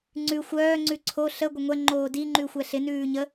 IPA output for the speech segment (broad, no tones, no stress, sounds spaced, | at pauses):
ŋ͡ǀ ʉ xʷ œː ŋ͡ǀ ʉ ǀʰ o ɬ ə ɡʷ ə ŋʷ ɛ ŋ͡ǃ oː d i ŋ͡ǃ ʉ xʷ ɛ ɬ ɪ n ʉː ɲ ə